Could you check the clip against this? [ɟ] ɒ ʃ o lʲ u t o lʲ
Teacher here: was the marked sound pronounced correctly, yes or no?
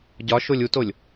yes